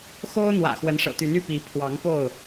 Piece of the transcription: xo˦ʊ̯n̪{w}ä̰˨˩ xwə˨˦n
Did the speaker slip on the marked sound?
no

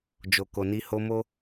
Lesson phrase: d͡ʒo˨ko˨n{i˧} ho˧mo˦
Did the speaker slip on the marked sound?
no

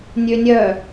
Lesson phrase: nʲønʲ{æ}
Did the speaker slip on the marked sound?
yes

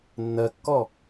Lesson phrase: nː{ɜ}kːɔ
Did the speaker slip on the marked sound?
no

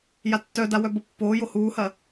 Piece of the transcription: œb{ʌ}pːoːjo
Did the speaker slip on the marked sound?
no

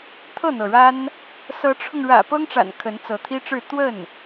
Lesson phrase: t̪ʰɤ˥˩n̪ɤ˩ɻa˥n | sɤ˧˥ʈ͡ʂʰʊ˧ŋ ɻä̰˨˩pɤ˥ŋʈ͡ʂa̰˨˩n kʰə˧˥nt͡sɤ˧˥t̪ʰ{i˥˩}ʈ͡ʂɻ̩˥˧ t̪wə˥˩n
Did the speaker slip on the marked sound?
yes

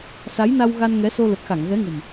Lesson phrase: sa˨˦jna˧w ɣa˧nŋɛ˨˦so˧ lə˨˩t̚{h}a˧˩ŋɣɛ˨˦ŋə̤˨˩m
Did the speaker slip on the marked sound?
yes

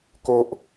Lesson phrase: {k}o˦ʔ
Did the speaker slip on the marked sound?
no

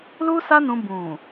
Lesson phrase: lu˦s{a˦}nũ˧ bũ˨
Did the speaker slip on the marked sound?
no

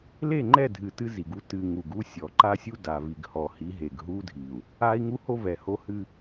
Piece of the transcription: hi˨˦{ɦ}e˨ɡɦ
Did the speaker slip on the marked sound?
no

